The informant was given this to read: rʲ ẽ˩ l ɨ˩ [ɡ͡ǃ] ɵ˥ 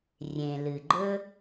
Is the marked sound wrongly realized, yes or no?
no